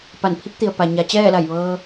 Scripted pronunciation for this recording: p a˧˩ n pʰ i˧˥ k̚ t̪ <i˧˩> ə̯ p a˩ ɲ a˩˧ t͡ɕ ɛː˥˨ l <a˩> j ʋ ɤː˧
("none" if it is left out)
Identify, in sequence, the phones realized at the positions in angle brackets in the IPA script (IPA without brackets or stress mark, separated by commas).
i˩, a˧˩